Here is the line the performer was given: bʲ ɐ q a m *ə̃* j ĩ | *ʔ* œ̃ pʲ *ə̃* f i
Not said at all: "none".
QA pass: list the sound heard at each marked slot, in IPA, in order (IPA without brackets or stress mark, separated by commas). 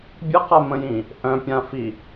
ə̃, ʔ, ã